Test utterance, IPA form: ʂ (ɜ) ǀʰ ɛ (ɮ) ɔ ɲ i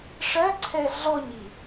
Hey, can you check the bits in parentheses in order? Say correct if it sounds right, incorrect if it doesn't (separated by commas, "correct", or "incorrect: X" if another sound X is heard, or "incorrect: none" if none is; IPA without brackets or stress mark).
correct, correct